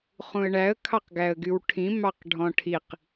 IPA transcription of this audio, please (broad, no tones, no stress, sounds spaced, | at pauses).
χ ũ ə̯ ɳ æ ə̯ kʰ ɑ q ɡ æ ə̯ ɡ y w ʈʰ ĩ m ɑ q ɖʱ ɔ̃ ʈʰ i q